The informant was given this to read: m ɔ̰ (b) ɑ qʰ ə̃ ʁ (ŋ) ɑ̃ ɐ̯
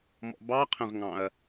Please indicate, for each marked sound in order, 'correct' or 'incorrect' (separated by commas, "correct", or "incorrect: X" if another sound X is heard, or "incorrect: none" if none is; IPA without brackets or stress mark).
correct, correct